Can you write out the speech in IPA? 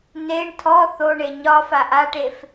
neɳ tʰɔ θoɳe ɲɒ faʔaʈef

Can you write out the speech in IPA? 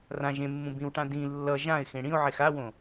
rã ʒẽmːũ bĩwʈã dĩ lːʌ ʒãɪ̯xẽ ɽĩʊ̯ʕex awõ

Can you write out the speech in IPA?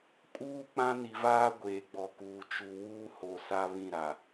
kʼuː˦ k͡pã˦ni˨vaː˦ ɡʷeː˨ɡ͡bɔ˨kuː˨ t͡ʃu˨ wuː˦ho˨ sa˦ βĩ˦˨ɾa˨

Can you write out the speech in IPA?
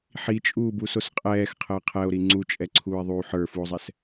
ħit͡ʃʼuːbusos qʼɛːxqʰəː qʰɛo̯ɾi ŋ͡ǀut͡ʃʼɛǀʰuːe̯ðˤuː ħə˞fuo̯zˤɛs

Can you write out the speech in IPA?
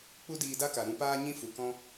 k͡pu˦diː˧da˦ka˨ ɾũ˧paː˦ɲĩ˦ fu˨kɔ̃˦

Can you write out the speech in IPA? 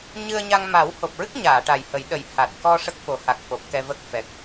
ɲɨ˧ə̯ɲa˧ŋ ma˨˩˦who˨˩p̚ɹɨ˦˥k̚ɲaː˨˩˨ ʈa˨˩jhə˨˩˦jɗə˨˩j ha˨˩t̚kɔ˧ ʂə˦˥k̚fo˨˩˦ha˨˩k̚ fo˨˩p̚kɛ˧və˦˥k̚fɛ˨˩k̚

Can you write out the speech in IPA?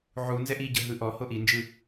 ʕunzɛʔ iɟɤ ɦɯʔɔho ʔind͡ʒɯ

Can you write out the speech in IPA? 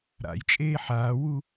ɾa̰j t͡ʃʼeːħaːwu

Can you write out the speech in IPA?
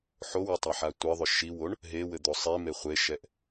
ħowɘtˤaħa tʷɘðˤʏ ʃiwoɳ | ɦewɘd̪o sˤeme χʷeʃɛʔ

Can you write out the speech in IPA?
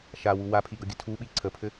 ʃawu wapʰiɡʌɡʲə tʰuɓi ǀʰəpʰɘ

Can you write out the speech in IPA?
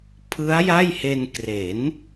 pʰɯ˦˥a̯ ja˥˩jhe˧n kre˩˦n

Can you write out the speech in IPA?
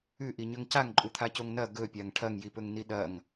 ʉʔiɲɵŋ caŋǃʼut̪ʰacoŋ nɐ ɡɵpʲaŋ ʈʰɐŋjipɵŋni ɗɐŋ

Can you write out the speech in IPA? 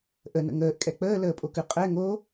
ʔənə̰ ŋəːʔkʼɛ k͡pəːləːpʼokʉ qʼɛ ŋo

